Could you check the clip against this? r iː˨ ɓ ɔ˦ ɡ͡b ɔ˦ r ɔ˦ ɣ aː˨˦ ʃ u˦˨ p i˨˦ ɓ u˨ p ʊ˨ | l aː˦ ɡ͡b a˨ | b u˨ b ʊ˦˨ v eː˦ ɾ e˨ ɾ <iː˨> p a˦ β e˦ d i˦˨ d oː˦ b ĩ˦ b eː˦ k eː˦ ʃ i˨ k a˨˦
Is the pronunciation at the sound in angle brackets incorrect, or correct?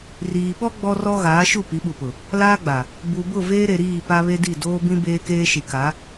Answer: incorrect